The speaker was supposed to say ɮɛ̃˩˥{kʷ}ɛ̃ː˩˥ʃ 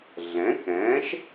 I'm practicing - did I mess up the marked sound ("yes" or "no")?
yes